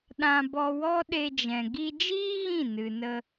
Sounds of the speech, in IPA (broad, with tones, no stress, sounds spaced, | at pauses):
ɗ ã˧ b ɔ˧ w ɔ˦ ɗ e˧ d͡ʒ ɛ̃˨ ɡ i˧ d͡ʒ iː˦ ɣ ĩ˦˨ n ɨ˨ n ə˧